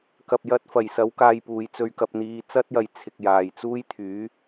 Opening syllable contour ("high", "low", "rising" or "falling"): low